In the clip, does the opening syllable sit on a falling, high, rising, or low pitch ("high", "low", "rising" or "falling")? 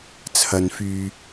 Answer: low